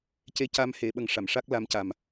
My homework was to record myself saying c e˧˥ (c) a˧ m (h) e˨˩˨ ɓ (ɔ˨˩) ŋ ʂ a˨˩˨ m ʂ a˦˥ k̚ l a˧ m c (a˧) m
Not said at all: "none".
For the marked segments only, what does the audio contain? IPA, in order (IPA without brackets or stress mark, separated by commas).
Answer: c, h, ə˨˩, a˨˩